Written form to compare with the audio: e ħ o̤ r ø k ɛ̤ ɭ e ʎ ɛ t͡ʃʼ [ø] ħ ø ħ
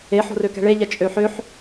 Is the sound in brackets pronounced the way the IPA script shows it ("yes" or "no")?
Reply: yes